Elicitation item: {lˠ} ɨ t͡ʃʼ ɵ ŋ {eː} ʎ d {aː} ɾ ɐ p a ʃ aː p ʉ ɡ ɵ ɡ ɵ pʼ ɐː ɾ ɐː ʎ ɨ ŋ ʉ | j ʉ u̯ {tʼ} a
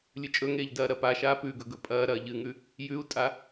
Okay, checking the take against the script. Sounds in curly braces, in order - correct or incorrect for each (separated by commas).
incorrect, correct, incorrect, correct